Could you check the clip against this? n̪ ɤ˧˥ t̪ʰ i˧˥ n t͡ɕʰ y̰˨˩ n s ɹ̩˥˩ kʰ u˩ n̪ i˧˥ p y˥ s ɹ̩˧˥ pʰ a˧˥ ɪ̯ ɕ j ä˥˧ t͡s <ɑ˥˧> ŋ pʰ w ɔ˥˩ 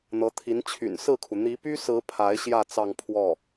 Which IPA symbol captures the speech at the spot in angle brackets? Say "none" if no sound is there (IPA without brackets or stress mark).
ɑ˥˧